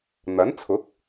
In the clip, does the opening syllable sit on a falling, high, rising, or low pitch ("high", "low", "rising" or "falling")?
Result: rising